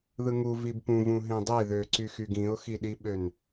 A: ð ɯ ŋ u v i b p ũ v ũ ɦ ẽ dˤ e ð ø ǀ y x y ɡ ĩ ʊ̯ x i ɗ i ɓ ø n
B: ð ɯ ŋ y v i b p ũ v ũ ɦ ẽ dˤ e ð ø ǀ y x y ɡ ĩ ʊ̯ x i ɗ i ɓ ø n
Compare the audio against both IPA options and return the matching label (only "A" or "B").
A